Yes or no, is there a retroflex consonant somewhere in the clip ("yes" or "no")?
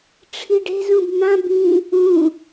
yes